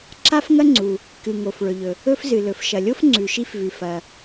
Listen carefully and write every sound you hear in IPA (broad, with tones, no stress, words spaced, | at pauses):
ǁa˥fŋɐ˥ŋ͡ǀu˩ | kɨ˩ŋo˩f ɭɵ˩ʎɵ˩ | ɵ˥fzɨ˩ lɵ˩fʃɐ˩lʲo˥f ŋ͡ǀʉ˩ʃi˥fvʉ˩ fɐ˩